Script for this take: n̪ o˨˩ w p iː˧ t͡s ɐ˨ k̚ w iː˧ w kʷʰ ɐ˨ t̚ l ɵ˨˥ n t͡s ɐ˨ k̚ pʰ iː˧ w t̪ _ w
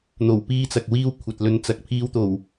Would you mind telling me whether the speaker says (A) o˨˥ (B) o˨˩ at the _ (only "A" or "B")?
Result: B